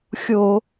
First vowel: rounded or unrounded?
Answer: rounded